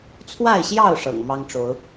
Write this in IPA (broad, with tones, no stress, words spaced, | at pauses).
t͡sʰwa˥˨ɪ̯ɕjɑ˥˨ʊ̯ ʂɤ̰˨˩ŋmɑ˦ŋʈ͡ʂo˨˦ʊ̯